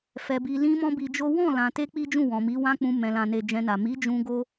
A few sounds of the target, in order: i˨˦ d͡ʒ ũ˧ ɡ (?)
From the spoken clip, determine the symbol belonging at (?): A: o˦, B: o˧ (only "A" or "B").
A